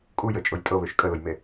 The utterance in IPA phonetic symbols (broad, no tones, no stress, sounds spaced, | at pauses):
kʼ u j ə t͡ʃʼ ʊ j tʼ ɤ β ø ʃ kʼ ə l ʊ j m e